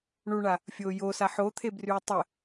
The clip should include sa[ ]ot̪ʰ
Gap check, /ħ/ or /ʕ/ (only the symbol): ħ